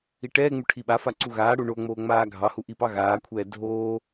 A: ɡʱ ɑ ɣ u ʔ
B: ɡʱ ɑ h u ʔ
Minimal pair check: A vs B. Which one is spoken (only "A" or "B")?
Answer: B